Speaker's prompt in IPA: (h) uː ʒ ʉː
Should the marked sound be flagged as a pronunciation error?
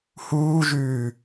no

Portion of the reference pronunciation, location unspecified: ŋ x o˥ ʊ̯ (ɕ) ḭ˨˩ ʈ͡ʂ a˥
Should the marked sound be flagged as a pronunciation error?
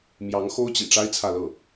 yes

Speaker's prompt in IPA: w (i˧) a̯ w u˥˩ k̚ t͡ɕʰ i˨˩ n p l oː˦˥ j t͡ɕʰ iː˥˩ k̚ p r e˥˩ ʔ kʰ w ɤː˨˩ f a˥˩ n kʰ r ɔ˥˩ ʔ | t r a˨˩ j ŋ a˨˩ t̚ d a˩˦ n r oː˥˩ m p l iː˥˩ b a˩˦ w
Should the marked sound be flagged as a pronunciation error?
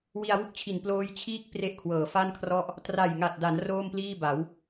no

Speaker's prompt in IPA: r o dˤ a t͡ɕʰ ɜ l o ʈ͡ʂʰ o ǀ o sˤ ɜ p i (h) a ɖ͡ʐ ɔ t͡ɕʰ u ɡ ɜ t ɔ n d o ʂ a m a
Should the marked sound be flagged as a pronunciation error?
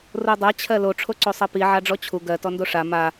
yes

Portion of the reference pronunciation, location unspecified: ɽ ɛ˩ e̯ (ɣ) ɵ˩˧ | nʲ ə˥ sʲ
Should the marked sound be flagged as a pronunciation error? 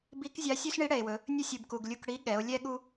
yes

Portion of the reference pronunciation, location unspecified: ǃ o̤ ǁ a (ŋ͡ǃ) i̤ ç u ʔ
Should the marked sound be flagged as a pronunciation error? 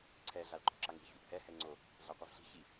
yes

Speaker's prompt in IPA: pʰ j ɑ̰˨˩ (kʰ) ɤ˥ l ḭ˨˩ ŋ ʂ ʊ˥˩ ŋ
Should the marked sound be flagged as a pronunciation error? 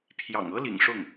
yes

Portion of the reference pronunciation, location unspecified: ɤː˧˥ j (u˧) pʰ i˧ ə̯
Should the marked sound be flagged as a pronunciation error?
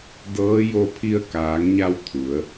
yes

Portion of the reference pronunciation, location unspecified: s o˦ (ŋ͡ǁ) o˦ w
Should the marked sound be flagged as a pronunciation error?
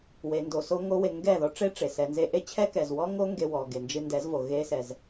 yes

